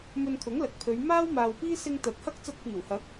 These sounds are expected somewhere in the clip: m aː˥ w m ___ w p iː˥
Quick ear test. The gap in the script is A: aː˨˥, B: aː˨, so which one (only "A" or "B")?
B